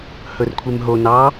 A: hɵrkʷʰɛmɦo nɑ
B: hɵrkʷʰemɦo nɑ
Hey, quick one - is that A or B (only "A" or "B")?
B